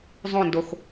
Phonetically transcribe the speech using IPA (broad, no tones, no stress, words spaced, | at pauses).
zˤõndox